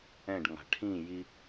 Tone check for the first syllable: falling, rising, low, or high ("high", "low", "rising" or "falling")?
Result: falling